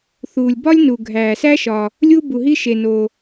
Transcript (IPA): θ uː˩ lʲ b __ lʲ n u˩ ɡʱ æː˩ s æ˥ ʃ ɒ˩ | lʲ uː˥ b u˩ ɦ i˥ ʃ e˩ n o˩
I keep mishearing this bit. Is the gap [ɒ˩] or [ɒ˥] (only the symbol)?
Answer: ɒ˥